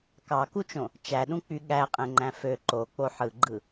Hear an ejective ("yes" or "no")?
yes